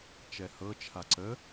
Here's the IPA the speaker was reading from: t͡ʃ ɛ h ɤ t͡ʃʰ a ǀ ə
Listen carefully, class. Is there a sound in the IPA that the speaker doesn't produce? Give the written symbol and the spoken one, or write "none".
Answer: none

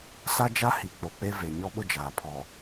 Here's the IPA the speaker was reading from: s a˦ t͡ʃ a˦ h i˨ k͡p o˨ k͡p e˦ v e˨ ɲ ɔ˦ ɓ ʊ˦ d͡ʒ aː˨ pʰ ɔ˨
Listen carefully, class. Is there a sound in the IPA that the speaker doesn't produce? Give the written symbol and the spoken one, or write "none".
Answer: t͡ʃ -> d͡ʒ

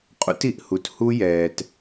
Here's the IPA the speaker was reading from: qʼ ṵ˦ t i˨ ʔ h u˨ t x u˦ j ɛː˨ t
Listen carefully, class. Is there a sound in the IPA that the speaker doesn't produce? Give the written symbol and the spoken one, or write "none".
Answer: x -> h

